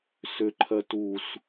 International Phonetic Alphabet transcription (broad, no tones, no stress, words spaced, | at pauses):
sʏǃʰɜ tus